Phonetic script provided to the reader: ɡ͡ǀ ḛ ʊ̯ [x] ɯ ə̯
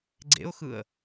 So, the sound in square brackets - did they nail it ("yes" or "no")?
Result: yes